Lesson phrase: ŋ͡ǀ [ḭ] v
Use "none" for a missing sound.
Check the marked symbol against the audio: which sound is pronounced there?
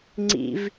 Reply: ḭ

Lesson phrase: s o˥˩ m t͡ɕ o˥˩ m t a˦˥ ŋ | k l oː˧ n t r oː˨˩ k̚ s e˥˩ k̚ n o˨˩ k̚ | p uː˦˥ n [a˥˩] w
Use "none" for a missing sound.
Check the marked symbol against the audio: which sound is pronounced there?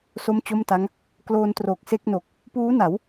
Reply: a˩˦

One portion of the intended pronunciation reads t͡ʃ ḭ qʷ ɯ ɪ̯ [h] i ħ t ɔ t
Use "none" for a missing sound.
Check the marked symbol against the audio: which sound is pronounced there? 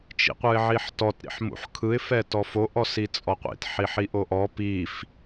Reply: ʕ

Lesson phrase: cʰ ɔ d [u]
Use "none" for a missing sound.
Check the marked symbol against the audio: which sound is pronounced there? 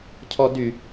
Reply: y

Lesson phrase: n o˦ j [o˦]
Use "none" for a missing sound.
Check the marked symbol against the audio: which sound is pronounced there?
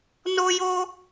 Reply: o˦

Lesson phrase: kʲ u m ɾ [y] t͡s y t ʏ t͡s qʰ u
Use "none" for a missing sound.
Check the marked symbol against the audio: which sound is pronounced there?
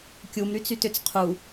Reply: y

